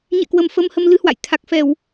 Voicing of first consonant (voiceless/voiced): voiced